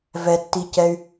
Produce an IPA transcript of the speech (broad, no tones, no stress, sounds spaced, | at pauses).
v ɛ tː i c ɛ y̯